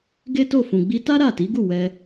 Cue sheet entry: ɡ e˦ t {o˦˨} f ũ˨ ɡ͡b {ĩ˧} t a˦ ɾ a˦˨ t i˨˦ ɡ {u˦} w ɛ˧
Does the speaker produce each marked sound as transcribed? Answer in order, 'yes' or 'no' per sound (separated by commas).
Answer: yes, no, no